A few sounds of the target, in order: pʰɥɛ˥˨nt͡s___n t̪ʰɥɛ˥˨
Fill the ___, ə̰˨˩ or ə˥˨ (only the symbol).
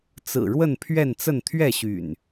ə˥˨